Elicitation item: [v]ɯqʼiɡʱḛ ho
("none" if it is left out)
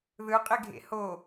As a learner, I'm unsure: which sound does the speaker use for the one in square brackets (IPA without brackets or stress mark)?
ð